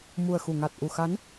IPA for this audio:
m u˨˩ ə̯ x u˧˩ ŋ a˨˩ t̚ ʔ u˨˩ x a˨˦ n

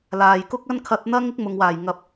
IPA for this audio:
l aː˨ j k ʊ˥ k̚ ɐ˥ n kʰ ɐ˧ t̚ n̪ ɐ˥ ŋ ɪ˥ k̚ m ʊ˨ ŋ w aː˨˩ j ŋ ɐ˨ p̚

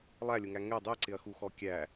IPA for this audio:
lˠ æ lʲ ʊ ŋ æ ŋ ɛ dˤ ɛ ǀ ɪ ɐ̯ x u x ɔ kʲ æ

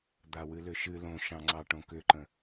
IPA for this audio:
d̪ a w ɨ l ʏ ʃ ɨ l õ ʃ ɑ̃ ŋ͡ǀ ɑ ʈ õ k ʏ ǃ ə̃

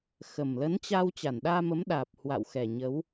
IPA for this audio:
x ə˨˩ m l ə˨˦ n t͡ɕ a˧ w t͡ɕ a˧˩ n ɗ aː˧ m ə˨˦ m ɗ aː˨˩ p̚ h w a̰˧˨ w x ɛ˨˩ ɲ ə˨˦ w

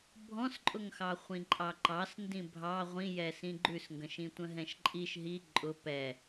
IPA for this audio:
bʱ ɔ̃ s ǃʼ ʊ ŋ x ɑ χʷ ĩ ǃʼ ɑ ǃ ɑ s n d ĩ bʱ ɑ ʁʷ ĩ j ɛ s ĩ ɡ͡ǃ ʉ s ŋ ɡ ə̃ ʃ ĩ tʷ ə̃ ɦ ɛ̃ ʃ ǃʼ i ʃ ɦ i ǃʼ ʊ p ɛ

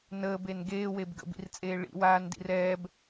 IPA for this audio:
n əː b e n ɡ eː w e b ɡ ə̰ b ḭ r t͡sʼ eː ɭ ḭ w aː n d ḭ r ɛː b

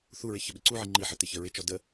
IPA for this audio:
θ u ɹ ɪ ç ə ɓ ɪ ǀ u ʕ i ŋ͡ǃ i ħ ə t ɪ ç ə ɹ ɪ t͡ʃ ɔ d ə

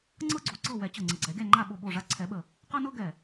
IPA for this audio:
ŋ͡ǀ ɤ˥ ɡ͡ǀ o˨˩ ǀ ɤ˥˨ w ɛ˨˩˦ t͡ɕ ɤ˨˩ ŋ͡ǀ ə˨˩ ɡ͡ǀ ɛ˨˩˦ ɡʲ a˥˨ ŋ͡ǃ a˥˨ ɓ o˥˨ ɓ o˥˨ ʐ a˥ ǀʰ ɛ˨˩˦ ɓ ə˨˩ | q ɤ˥ n ɤ˥ ɡ ɛ˨˩

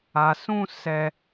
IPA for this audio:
a˧ s ũ˦ s ɛ˦

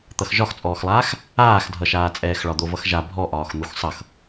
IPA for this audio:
t̪ ʌ x ʒ ɒ x t͡sʼ ɔː x lˠ aː x | aː x dʱ ʌ ʃ aː t͡sʼ ɛː x ɭ ɒ d̪ o v ʌ x ʒ a bʱ ɔ ʔ ɒː x n̪ u x sˤ ʌ x

